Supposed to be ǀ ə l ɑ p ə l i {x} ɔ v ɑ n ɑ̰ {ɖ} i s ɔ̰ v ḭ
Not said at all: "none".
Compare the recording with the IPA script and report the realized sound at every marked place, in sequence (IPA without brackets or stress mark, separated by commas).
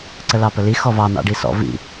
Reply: x, ɖ